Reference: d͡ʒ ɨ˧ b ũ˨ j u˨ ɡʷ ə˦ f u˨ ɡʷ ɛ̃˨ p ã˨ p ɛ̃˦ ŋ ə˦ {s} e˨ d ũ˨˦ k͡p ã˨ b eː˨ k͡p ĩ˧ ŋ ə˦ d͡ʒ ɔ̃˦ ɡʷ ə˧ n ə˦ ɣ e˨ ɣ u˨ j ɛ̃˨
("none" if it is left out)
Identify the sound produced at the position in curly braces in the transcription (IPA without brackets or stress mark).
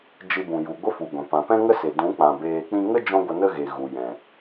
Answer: s